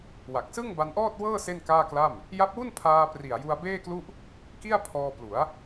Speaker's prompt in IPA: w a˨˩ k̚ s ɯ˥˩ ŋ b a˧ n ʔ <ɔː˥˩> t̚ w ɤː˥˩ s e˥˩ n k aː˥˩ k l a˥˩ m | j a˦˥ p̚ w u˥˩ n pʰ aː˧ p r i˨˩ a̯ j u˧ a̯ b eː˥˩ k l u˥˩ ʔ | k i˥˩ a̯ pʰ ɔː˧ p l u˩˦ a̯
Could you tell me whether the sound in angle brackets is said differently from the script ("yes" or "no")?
no